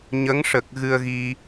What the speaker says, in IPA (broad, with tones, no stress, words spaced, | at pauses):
ɲə˧˥ŋʂə˨˩k̚ ɣɨ˧ə̯ɣi˧